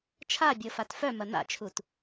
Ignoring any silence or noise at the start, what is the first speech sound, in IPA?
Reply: t͡ʃʰ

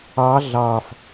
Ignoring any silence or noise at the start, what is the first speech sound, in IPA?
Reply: ɑ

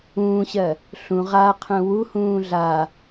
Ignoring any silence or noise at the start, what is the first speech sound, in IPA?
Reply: ũː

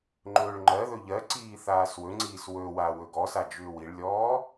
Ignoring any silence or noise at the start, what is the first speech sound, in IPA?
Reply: ŋ͡ǃ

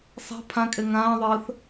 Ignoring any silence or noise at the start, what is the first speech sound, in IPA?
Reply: sˤ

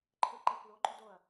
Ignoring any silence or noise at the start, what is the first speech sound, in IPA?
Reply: ǃʰ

